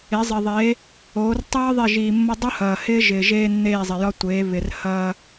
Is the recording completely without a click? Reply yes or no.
yes